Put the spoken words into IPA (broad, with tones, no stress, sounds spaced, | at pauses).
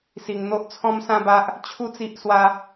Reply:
s i˧ ŋ n̪ o˦ ʔ t͡sʰ ɔ̃˦ m s ã˦ b a˦ ʔ | t͡ɕʰ u˦ t͡s i˦ ʔ s w a˦